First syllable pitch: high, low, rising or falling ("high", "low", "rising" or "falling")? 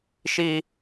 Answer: high